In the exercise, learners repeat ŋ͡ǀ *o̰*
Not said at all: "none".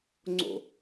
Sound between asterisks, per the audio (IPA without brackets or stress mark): o̰